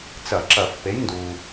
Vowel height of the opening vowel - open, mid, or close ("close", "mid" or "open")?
open